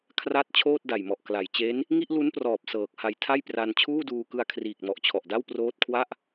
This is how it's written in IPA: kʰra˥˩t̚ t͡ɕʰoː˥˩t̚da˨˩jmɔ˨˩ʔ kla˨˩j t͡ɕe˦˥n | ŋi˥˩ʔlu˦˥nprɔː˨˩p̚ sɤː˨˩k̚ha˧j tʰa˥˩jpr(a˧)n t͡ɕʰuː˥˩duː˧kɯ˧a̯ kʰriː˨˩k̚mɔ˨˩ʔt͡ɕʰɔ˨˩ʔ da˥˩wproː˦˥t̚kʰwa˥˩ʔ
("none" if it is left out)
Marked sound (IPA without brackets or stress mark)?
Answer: a˧